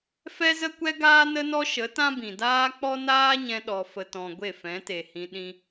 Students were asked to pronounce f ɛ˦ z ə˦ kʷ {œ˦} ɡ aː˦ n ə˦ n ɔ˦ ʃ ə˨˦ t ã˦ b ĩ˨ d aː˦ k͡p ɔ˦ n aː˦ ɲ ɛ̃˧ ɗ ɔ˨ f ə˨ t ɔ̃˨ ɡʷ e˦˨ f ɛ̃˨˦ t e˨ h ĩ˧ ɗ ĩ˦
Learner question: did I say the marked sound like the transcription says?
no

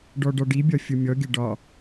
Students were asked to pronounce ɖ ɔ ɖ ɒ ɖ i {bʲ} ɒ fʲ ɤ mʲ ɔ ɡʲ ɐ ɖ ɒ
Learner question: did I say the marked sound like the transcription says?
yes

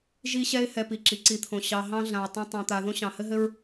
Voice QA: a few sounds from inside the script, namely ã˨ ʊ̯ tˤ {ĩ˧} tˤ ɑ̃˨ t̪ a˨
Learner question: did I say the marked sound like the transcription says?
no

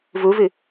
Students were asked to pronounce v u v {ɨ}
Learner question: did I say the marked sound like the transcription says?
yes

